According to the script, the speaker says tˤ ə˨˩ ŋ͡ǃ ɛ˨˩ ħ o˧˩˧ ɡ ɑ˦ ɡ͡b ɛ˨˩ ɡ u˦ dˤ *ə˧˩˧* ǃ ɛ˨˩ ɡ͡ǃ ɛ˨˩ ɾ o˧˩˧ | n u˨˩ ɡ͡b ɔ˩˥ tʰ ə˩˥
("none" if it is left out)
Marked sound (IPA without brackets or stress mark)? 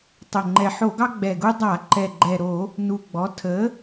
a˧˩˧